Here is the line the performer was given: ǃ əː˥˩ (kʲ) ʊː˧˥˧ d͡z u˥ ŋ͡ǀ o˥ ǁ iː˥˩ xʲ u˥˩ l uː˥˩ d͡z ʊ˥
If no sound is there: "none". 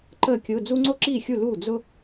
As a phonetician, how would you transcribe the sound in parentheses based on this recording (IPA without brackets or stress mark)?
kʲ